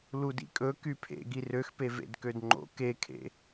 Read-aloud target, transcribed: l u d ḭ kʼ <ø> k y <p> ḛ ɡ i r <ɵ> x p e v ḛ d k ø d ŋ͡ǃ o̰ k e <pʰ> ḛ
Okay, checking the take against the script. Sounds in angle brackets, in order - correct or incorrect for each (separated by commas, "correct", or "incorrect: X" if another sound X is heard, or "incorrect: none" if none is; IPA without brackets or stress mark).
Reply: incorrect: ɵ, incorrect: pʰ, incorrect: ø, incorrect: kʰ